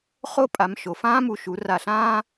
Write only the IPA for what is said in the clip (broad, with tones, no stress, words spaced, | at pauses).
χo˥ pʼa˩˧mʃo˩fãː˥mu˧˩ ʃu˩˧ra˧˩ɬãː˥